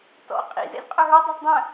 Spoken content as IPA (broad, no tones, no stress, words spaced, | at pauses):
tɔ̰ qʼḭzɛ̰z qʼœɦə˞dˤʊz dˤœ̃